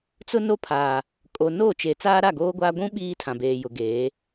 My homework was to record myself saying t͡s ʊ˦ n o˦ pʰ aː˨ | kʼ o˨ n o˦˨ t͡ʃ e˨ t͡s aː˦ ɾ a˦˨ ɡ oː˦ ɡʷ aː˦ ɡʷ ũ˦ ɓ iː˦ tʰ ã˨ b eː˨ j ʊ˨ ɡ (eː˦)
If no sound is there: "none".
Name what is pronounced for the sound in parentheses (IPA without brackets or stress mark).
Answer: eː˨˦